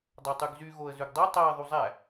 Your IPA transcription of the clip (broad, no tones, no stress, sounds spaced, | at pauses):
dˤ œ tˤ ʉ ɡ z y ɣ o ə̯ z ʉ ɡ dˤ e tˤ æ ə̯ ðˤ u zˤ æ